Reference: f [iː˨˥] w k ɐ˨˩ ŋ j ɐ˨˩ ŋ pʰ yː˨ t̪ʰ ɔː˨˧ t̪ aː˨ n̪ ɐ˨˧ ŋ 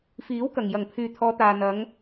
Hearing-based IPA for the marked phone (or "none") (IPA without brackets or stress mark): iː˨˥